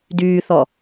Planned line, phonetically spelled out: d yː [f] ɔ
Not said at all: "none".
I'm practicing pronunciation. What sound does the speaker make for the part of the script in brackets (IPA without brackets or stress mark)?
θ